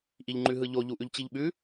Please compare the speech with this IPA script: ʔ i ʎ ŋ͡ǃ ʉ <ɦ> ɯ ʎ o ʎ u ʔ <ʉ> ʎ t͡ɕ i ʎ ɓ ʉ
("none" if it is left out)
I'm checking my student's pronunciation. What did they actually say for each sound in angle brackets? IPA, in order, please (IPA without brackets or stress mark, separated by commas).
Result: ɦ, ʉ